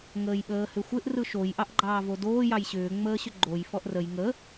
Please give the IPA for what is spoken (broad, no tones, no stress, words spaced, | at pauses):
ŋəːjɓəːhʏxʷɪʔ rɯʃoj ʔɑʔɡ͡ǃɑːvodoː jɑjɕʏː ŋ͡məːɕʏɡ͡ǃoj fɔʔrəj ŋə